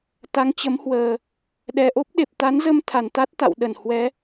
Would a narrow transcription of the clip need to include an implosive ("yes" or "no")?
yes